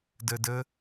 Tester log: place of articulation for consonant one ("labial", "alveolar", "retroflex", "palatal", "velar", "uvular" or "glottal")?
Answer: alveolar